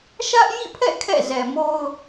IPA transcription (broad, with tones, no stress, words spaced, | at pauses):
ʃä˦ʔ jḭ˦˨pʰɛ̰˦˨ kʰɛ̰˦˨ zɛ˨mo˦ʊ̯